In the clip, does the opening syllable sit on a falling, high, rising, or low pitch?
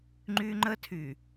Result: high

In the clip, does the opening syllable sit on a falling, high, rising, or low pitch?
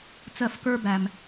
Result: falling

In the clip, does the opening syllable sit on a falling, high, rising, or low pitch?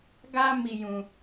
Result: high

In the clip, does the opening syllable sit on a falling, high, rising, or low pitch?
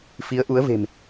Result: rising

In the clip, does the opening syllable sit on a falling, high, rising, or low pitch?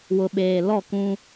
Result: low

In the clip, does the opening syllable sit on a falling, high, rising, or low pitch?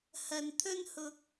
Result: low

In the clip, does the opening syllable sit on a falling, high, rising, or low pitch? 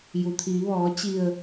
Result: low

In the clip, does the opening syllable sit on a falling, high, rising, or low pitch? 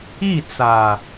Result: falling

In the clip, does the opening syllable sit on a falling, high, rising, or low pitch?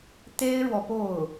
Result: high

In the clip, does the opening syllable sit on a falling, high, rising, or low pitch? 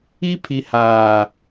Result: high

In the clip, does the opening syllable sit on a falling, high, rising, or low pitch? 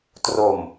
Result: low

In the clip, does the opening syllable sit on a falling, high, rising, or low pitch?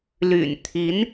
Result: low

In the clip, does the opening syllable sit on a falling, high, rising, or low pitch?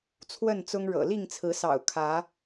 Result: falling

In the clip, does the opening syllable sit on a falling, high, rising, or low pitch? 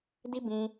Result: high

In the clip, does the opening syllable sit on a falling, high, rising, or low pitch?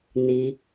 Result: low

